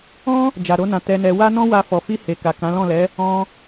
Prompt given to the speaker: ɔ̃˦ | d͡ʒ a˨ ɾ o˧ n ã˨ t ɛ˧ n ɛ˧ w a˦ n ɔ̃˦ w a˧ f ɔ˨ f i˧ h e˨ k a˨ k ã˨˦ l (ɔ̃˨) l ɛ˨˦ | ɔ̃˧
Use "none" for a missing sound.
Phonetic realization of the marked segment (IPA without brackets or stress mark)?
ɔ̃˦˨